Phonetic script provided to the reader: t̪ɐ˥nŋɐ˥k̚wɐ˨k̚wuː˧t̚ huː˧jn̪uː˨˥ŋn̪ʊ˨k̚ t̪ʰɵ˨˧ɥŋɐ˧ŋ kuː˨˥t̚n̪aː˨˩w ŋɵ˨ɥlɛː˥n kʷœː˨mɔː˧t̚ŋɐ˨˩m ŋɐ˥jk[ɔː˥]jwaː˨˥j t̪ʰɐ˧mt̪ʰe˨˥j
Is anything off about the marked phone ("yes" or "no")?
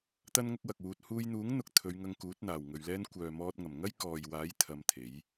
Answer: yes